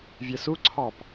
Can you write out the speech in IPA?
vʲ ɛ s u ǀʰ ɑ p

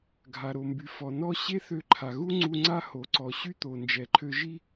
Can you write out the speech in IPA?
ɡʱ a˩ ɾ o˩ m b y˩ f ɔ˩ n ɔ˥ ɕ e˥ θ ø˧ ǃʰ a˩ ɣ u˥ ŋ͡ǀ u˧ ŋ͡ǀ a˥ h o˩ ǀ ɔ˩ ɕ y˥ t̪ o˩ n d͡ʒ ɛ˩ ǃʰ ø˧ ʒ i˥

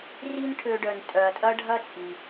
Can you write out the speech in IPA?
r i˥ n ʈʰ ø˧ ɖ œ˩ n tʼ œ˩ ɐ̯ tʼ ɐ˥ ɖʱ ɐ˥ t͡sʼ i˩

